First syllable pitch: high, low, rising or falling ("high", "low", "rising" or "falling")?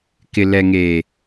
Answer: low